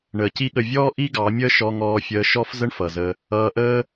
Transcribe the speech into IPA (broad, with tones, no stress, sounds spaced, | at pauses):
ɳ əː˨ c i˦ ɠ ə˧ vʲ ɔː˦ ʔ i˦ ɡ ɑ˨˦ mʲ əː˦ ʃ ɔ˧ ŋ ɔː˧ fʲ əː˧ ʃ ɔ˦ f z ə˦ ɳ f ʌ˨ z ə˧ | ʌː˧ ʔ əː˦